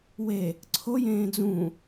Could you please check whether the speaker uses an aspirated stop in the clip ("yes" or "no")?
yes